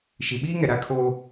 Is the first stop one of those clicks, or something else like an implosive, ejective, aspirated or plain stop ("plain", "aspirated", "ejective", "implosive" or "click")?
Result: implosive